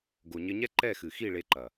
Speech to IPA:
ɡ o˨ ɲ ɘ˧ ɲ ɛ˦ ǃ ɛ˦˨ x ɨ˨ x i˦˨ ɭ e˧ ǃ ɐ˨

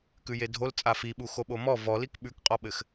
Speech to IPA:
k ʉ j e dʱ o l t͡sʼ a f i ɓ u x o ɓ o m ɔ v ɔ l i k ɓ ʉ k qʼ ɔ ɓ ɘ x

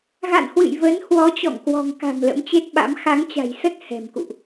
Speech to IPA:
ɣ a̰˧˨ n h w ɨ̰˧˨ j v ə˨˦ n h w ɔ˨˦ t͡ɕ ɔ̰˧˨ ŋ k w ɔ̤˨˩ ŋ k a̤˨˩ m l ə̰˧˥ m t͡ɕ e˦˥ t̚ ɓ a̰˧˥ m x a˨˦ ŋ t͡ɕ a̤˨˩ j s ə˦˥ t̚ h ɛ̤˨˩ m k ṵ˧˨ ʔ

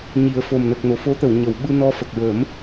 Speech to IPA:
ɲ i˨˩˦ ə̯ f o˨˩ m n ə˨˩ k̚ n o˨˩˨ f o˧˥ t̪ ə˨˩˨ w ɲ ə˨˩˨ w ɓ ɨ˧ n ɔ˧ f ə˨˩ k̚ ɹ ə˨˩˦ m

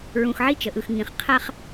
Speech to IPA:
ɹ ũ˨ x ʕ i˦ t͡ʃ ə˨ ʔ ɯ˨ x ŋ ĩ˨ χ qʰ a˦ χ

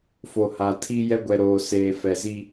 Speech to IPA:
f o˨ h a˨ tʰ i˦ j ɛ˦ ɡʷ ɛ˨ ɾ oː˨ s eː˨ f ɛ˨ z i˦

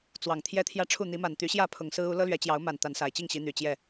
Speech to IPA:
t͡s w ɑ˨˩ ŋ t̪ʰ j ɛ˦ t̪ʰ j ä˦ ʈ͡ʂʰ u˥˨ n̪ i˨˦ m a˨˩ n t̪ y˨˦ ɕ j ä˥˨ pʰ ʊ˨˩ ŋ s ɹ̩˦ u˨˦ l ɤ˦ l ɥ ɛ˨˦ t͡ɕ j ɑ˨˦ ʊ̯ m a˨˩ n t̪ a˨˦ n s a˨˩ ɪ̯ t͡ɕ i˥˨ ŋ ɕ i˨˦ n̪ y˨˩ t͡ɕ j ɛ˥˨

